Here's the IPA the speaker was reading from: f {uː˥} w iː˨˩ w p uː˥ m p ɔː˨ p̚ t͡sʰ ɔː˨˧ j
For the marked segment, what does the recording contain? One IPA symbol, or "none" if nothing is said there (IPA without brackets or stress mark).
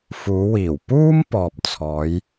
uː˨˧